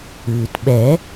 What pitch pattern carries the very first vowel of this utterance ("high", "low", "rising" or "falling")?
low